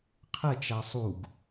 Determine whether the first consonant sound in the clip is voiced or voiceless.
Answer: voiceless